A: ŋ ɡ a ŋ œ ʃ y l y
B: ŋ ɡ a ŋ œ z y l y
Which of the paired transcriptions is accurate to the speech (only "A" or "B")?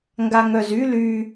B